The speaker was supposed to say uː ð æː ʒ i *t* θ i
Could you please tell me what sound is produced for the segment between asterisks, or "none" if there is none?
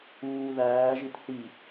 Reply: t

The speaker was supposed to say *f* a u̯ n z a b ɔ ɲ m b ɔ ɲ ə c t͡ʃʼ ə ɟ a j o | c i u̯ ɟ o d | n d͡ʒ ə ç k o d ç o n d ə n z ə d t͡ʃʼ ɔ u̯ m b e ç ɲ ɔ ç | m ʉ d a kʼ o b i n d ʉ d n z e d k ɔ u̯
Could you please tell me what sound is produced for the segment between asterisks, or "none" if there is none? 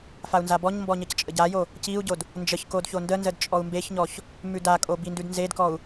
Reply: f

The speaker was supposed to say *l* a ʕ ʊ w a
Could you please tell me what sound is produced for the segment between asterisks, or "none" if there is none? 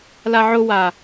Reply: l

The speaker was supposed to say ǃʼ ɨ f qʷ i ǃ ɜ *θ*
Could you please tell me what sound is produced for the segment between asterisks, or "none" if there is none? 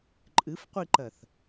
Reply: θ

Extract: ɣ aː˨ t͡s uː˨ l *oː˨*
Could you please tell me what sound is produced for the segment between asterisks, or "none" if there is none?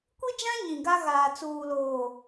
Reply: oː˨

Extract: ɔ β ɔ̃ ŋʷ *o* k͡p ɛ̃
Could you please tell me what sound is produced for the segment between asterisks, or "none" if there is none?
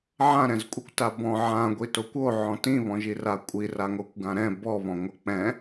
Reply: ɤ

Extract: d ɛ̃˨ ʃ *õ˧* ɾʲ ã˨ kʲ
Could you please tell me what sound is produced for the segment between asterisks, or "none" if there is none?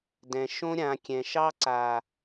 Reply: õ˧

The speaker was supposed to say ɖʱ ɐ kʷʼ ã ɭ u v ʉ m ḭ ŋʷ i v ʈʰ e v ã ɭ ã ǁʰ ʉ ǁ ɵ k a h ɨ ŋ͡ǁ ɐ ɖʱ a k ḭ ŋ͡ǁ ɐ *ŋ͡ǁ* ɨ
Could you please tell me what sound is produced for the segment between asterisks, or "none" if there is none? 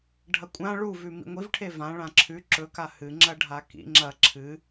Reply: ǁʰ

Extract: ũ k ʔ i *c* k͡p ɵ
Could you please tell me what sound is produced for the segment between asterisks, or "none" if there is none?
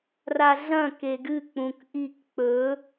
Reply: k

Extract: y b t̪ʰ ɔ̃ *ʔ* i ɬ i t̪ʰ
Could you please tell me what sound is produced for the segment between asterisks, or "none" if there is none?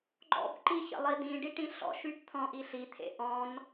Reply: ʔ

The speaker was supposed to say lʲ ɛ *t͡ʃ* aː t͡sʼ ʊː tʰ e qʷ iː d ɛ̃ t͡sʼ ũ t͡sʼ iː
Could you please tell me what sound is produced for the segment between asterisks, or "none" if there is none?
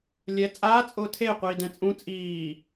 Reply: t͡sʼ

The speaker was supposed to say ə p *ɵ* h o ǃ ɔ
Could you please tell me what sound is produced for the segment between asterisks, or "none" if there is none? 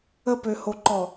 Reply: ø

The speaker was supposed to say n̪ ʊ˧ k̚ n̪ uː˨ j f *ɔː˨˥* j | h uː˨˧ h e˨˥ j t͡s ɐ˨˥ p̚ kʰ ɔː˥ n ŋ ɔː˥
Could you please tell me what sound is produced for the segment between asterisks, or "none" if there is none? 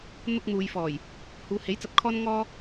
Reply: ɔː˨˩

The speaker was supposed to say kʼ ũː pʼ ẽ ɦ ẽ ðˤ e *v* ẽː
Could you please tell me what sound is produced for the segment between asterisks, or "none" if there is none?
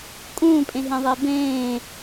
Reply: b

